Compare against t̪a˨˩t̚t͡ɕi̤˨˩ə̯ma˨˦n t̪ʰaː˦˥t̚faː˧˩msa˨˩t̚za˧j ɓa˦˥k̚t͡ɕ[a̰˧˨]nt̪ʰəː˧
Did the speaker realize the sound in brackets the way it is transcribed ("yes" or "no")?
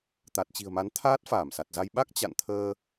yes